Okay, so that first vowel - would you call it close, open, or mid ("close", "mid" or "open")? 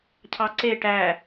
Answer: open